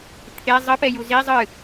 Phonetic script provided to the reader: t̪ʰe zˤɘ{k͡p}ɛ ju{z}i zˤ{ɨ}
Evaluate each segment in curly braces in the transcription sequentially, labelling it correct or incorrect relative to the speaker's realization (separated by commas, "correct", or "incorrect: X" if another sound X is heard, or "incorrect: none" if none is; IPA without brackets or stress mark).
incorrect: p, correct, correct